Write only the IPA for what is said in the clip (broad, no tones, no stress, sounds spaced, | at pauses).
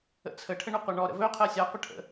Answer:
ə̰ t͡sʰ ə ʈʰ ə ɳ o qʷ a ɳ ɔ ɾ ə̰ v ɵ qʰ ɜ sʲ a qʷ ə ʈʰ ə̰